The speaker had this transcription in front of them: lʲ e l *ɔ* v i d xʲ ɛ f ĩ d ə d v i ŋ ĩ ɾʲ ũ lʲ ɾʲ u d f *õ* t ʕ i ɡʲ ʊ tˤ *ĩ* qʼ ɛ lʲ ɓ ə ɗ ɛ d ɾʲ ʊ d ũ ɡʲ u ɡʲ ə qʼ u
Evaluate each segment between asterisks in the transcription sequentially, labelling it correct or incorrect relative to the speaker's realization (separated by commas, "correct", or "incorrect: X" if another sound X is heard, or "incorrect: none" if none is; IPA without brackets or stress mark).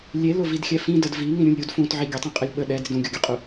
incorrect: ʊ, incorrect: ũ, correct